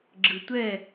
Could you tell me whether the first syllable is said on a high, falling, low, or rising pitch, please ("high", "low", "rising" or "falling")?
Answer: low